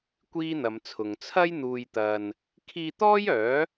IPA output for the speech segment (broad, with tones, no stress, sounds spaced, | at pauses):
kʷ iː˥ n̪ ɐ˨˧ m t͡sʰ ʊ˨ ŋ t͡sʰ ɐ˥ j n̪ uː˨ j t̪ ɐ˨ n | kʰ iː˧ t̪ ɔː˥ j œː˨˥